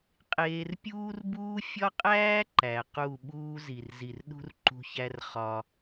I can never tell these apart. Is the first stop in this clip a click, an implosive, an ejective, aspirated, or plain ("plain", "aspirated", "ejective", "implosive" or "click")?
ejective